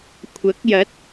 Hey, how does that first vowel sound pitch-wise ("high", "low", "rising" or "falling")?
rising